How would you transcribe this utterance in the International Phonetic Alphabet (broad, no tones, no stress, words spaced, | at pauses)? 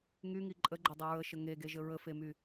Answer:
ŋyŋi ǃʼəɡ͡ǃədˤi ɹəʃə ŋeɡeʒə ɹəfemy